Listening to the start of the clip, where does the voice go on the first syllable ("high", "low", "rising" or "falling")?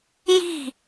falling